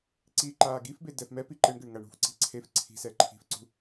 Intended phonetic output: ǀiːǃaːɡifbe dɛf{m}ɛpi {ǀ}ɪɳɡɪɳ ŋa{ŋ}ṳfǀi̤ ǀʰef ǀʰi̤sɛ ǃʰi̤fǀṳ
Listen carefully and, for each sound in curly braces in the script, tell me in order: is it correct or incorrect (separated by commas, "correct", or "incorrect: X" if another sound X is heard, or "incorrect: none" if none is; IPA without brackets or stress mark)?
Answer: correct, incorrect: ǃ, incorrect: ɳ